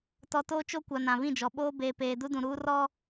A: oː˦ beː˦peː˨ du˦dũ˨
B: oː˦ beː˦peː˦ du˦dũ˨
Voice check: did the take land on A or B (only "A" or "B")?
B